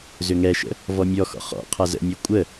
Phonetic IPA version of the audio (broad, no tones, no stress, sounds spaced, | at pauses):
z ʏ ŋ ɛ ʃ ə̰ | v ɔ mʲ ɔ x ɔ̰ χ ɔ̰ qʰ a z ə̰ mʲ ɛ kʷʼ ə